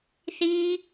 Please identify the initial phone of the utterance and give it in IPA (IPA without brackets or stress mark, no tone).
θ